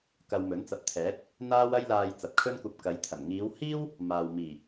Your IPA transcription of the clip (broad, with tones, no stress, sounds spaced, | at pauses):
k ɐ˧ w m ɵ˨˥ n t͡s ɐ˨˥ p̚ t̪ʰ ɛː˨˥ t̚ | n̪ aː˥ w ɐ˥ j l aː˧ j t͡s ɐ˨˥ p̚ kʰ ɵ˥ n kʷ ɐ˧ p̚ k ɐ˨˧ j t̪ʰ ɐ˨˩ n ŋ iː˨˧ w h iː˥ w | m aː˨ w m iː˨˩